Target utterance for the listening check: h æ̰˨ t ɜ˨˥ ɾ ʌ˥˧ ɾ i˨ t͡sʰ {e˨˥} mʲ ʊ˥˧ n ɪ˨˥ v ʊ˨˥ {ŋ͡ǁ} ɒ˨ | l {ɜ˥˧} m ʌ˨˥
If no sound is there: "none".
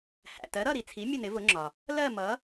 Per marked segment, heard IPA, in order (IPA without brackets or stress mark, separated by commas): i˨˥, ŋ͡ǁ, ɜ˥˧